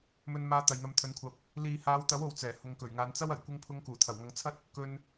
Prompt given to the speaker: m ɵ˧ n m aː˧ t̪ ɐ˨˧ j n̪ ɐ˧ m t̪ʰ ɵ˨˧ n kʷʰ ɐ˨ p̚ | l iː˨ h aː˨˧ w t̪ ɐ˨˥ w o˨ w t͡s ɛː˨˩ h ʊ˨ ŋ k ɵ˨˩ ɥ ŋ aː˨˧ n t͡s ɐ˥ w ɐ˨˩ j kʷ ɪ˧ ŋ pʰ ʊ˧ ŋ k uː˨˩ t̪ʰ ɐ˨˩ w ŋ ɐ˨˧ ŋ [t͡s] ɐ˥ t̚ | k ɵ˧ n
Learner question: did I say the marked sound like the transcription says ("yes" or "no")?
no